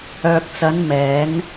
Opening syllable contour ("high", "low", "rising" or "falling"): low